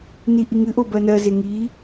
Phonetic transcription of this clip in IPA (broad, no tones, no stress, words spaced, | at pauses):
niʔiŋɨʔo bɜnɜze ŋi